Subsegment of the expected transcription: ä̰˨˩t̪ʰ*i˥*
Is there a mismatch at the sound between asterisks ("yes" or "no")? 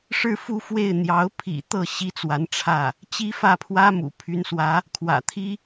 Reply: no